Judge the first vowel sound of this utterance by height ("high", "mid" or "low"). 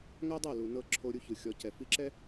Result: low